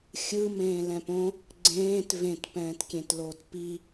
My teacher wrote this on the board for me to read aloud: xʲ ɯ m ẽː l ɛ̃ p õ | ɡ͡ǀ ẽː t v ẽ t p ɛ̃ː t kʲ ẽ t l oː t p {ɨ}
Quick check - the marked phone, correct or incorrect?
incorrect